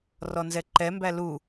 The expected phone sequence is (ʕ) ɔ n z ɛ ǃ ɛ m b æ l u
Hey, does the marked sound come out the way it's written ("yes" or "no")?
no